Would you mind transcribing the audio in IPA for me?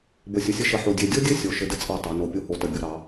b ə˧˩ sʲ ə˧˩ sʲ ə˥ ʃ ə˧˩ ħ o˧˩ dʲ e˧˩ dʲ o˥ dʲ ɘ˥ sʲ o˧˩ ʃ ɘ˧ d ɘ˥ t͡sʼ ɑ˧˩ tˤ ɑ˩˧ n o˧˩ pʲ o˥ h o˧˩ t ə˧˩ bʲ o˧ ɾ ɑ˩˧

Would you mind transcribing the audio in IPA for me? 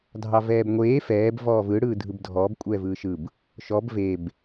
dʱ ɑ v ɛː b ŋʷ eː f ɛː b v ɔː v ɯ ɽ ɯː dʱ ɯ b dʱ ɔː b kʷʼ ɛː v ɯː ʃ ɯ b | ʃ ɔ b v e b

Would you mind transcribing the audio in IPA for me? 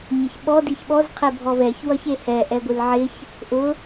ɲ ɪ ç ɓ ɔ d i ç ɓ ɔ z qʰ e bʱ ɔ v ɛ ç w ʌ ç e h ɛ ʔ ɛ ɡʷ ɨ l ʕ ɪ ç | ʔ ʊ

